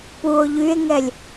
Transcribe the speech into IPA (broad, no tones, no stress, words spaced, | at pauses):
puo̯ ʎye̯ŋɛlʲ